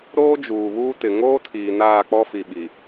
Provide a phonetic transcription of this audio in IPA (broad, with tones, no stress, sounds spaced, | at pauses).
ɾ oː˦ d͡ʒ uː˨ β uː˦ t ɪ˨ ŋ oː˦ tʰ iː˨ n aː˦˨ k͡p ɔ˦ f i˨ ɓ i˨